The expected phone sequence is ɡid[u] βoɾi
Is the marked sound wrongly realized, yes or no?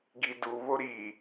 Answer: no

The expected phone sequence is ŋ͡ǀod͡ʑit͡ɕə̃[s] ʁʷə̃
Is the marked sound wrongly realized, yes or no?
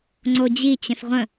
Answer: no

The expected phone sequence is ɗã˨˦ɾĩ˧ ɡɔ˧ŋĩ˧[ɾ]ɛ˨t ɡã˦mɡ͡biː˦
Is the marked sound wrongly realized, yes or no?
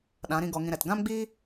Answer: no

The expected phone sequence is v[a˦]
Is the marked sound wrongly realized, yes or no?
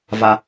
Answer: no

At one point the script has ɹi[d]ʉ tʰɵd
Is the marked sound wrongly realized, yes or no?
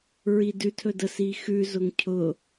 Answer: no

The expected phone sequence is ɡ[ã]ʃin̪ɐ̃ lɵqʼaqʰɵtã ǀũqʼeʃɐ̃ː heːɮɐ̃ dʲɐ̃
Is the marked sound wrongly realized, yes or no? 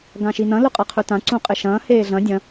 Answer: no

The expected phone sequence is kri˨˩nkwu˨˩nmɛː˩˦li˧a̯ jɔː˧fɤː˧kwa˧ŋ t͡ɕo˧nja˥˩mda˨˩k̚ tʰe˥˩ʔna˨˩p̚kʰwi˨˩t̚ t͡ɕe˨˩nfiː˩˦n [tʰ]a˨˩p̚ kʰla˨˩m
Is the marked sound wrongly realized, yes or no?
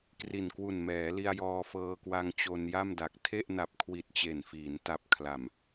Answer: yes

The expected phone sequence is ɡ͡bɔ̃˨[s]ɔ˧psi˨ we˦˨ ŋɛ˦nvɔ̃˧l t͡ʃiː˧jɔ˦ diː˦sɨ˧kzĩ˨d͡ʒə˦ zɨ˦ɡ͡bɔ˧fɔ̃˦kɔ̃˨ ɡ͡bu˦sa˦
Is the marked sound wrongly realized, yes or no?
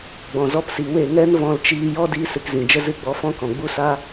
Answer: yes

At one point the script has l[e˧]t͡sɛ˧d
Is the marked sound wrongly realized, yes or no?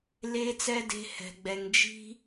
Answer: no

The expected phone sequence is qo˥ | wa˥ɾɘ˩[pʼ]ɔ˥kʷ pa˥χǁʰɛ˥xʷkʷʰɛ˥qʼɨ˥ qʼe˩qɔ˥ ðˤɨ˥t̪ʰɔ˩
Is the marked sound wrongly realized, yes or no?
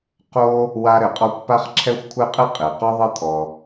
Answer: yes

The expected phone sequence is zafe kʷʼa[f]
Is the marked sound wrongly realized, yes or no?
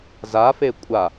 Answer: yes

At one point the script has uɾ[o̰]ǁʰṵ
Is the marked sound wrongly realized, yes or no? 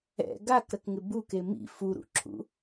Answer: yes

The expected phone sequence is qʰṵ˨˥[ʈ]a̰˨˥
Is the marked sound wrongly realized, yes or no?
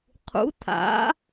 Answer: yes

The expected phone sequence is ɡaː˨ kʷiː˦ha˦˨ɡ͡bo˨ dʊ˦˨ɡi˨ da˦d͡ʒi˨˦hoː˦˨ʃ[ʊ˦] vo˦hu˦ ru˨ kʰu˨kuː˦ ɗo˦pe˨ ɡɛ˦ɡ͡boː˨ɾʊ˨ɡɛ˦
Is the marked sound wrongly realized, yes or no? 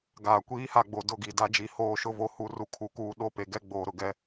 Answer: no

